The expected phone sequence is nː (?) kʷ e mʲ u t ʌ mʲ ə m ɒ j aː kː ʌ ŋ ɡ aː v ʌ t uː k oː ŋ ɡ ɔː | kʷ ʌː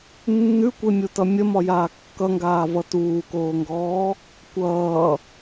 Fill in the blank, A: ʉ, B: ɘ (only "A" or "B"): A